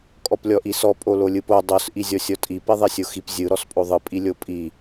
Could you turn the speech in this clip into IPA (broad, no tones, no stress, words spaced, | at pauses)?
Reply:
kʼɔplʲɔʔisɔ pʼololʲɯpo dˤos ʔizʲɔsʲɔtʼi piðˤisʲoxip zʲɯ ɾɔspʼoðˤɯ pʼilʲopʼi